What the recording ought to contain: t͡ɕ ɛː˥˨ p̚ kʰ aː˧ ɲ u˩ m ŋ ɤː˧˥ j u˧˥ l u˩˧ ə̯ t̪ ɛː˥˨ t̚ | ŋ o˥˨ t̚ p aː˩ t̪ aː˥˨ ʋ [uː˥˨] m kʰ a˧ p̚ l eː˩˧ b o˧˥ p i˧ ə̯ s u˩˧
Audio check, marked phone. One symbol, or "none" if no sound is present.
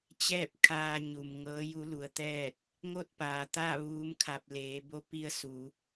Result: uː˧˥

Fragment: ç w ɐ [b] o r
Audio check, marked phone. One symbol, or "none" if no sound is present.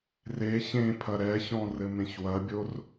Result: bʲ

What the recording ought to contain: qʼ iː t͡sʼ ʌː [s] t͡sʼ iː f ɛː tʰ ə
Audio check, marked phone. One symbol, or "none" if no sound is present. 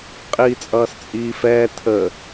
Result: s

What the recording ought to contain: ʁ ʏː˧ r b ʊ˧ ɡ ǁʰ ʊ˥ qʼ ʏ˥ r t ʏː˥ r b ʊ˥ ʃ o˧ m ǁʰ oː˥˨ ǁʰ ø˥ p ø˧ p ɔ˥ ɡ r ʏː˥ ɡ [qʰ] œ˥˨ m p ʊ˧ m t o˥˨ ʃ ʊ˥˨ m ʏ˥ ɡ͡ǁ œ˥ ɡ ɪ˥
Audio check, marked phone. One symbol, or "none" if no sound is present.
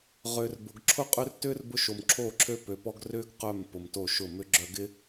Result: q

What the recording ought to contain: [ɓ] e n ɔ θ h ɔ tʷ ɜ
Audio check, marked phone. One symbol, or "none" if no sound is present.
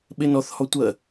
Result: ɓ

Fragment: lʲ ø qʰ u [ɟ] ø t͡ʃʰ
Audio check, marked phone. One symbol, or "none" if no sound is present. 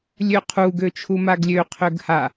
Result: ɡ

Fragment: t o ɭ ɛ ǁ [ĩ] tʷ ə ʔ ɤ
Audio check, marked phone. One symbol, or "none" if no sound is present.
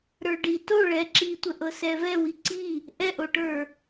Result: i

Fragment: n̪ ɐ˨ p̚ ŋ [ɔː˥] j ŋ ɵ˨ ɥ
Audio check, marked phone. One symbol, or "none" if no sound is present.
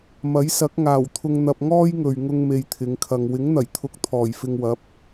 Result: ɔː˥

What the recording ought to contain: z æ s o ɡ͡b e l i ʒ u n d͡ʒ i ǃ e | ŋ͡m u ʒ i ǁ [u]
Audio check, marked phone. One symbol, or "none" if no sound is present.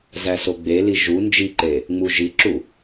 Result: u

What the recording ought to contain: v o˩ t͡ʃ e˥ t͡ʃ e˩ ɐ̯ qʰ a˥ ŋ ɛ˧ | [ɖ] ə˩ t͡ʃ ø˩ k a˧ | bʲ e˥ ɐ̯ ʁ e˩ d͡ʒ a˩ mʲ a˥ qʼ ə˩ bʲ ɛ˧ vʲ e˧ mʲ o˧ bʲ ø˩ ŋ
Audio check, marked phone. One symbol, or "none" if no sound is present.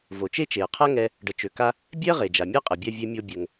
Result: ɖ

